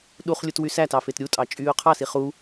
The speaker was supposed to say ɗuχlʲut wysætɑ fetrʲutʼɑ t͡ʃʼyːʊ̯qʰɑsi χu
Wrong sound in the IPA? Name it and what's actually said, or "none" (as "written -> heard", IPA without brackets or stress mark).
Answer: rʲ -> ɾʲ